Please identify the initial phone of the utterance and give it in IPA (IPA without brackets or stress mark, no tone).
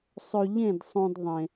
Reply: sˤ